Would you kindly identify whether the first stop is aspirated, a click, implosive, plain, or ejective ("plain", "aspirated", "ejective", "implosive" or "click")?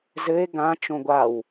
plain